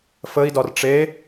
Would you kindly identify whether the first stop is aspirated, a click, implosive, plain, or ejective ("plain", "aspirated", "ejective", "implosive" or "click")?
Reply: plain